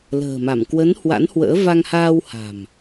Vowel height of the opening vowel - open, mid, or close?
mid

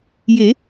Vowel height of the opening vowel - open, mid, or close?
mid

